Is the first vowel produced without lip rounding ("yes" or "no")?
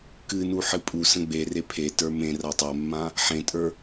yes